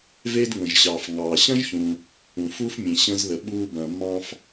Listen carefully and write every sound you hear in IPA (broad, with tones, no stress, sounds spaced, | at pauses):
v e˥ d ŋ ə̃˩ ʒ ɕ ɑ˩ f ŋ ɑ˩ ɕ ɐ̃˥ ʒ ç ũ˩ | ũ˩ f u˥ f mʲ ẽ˩ ɕ ə̃˧ z ð ə˩ ɓ u˧ b ɐ̃˩ mː ɑ̃˧ f